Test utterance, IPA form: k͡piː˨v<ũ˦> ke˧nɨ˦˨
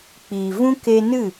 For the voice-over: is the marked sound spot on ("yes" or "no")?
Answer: yes